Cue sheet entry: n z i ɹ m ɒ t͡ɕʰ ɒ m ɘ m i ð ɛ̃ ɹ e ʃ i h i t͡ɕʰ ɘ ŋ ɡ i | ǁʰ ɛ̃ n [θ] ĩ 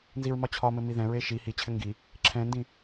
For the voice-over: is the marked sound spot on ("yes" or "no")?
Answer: no